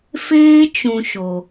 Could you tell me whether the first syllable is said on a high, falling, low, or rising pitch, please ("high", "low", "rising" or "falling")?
high